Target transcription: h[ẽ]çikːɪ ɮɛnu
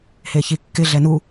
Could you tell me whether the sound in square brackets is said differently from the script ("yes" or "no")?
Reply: yes